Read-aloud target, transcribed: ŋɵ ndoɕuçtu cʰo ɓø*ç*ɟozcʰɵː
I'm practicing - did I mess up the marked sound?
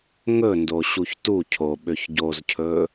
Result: no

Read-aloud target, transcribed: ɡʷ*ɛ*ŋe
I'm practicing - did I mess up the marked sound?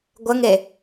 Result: yes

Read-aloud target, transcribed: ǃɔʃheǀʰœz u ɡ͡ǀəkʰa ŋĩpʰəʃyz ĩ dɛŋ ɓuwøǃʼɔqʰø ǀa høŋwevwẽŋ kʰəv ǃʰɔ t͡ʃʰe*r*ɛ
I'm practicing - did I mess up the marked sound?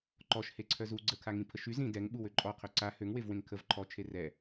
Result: no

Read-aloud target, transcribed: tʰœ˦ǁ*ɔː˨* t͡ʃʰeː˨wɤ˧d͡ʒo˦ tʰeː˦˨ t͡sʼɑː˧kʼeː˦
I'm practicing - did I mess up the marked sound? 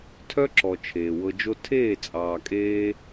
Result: yes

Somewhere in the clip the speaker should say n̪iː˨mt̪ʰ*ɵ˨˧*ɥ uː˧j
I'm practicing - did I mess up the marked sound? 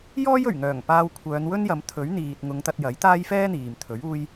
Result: yes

